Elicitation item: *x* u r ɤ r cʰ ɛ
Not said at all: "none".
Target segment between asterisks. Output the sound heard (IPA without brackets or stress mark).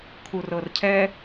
kʰ